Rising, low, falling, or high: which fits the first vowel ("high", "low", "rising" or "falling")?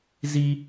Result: high